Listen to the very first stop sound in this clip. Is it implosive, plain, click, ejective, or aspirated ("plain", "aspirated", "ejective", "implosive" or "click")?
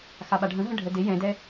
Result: implosive